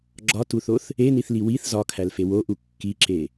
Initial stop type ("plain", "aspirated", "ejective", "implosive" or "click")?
click